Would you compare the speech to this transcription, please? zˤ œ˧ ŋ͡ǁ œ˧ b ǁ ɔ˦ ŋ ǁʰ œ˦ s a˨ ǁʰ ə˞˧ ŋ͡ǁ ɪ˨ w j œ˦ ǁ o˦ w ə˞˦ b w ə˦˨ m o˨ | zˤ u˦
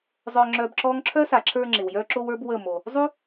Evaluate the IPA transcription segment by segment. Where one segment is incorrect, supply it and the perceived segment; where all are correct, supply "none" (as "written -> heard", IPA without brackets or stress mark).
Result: none